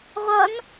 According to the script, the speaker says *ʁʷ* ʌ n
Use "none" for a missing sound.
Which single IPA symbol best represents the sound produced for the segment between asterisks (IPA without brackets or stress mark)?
ʁʷ